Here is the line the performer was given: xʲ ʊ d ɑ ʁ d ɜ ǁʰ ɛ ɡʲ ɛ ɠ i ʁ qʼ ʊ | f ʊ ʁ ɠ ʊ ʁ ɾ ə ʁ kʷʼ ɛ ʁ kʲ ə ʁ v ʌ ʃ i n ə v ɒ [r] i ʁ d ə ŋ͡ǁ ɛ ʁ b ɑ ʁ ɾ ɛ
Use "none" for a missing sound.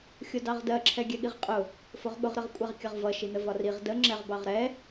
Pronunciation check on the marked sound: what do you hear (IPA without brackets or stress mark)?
r